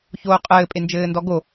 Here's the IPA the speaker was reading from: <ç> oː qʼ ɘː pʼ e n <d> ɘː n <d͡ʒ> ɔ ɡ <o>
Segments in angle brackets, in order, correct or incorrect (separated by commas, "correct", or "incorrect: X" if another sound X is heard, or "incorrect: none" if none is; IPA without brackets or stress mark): correct, incorrect: d͡ʒ, incorrect: d, correct